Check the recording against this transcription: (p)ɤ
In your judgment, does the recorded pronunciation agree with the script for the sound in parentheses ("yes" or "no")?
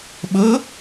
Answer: no